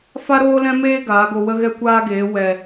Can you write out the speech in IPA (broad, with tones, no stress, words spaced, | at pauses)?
fa˦ɾoː˦lɛ̃˦meː˦ ɡaː˨˦ɡo˧wə˦ ɣɛ˦kʷaː˦ɡeː˨˦ wɛ˨